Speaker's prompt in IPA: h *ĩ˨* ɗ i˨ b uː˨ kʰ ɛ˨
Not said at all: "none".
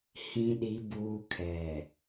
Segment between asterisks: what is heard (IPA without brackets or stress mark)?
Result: ĩ˨